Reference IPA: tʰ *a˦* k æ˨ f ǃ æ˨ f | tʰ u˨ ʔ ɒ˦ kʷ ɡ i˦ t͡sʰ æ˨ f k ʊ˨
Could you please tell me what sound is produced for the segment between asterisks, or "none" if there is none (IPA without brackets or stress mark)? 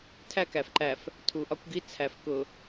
æ˦